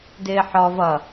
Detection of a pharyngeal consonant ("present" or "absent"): present